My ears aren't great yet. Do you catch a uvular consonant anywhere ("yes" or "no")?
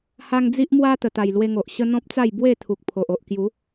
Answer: no